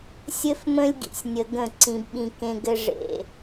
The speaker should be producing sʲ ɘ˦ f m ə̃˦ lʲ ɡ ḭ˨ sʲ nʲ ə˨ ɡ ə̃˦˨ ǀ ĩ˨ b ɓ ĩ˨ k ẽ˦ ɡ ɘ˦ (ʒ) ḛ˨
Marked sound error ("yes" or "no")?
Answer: yes